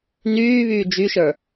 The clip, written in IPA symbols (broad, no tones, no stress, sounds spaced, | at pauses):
n yː β yː d͡ʒ y ʃ ə˞